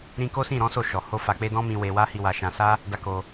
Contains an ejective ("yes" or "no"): no